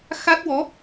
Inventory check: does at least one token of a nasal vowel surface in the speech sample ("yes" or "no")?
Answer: no